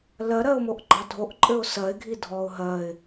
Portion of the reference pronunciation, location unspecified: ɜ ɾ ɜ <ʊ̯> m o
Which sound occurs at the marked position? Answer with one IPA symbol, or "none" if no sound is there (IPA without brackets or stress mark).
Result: ʊ̯